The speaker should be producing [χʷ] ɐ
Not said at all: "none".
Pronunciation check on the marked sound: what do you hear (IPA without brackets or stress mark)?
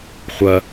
χʷ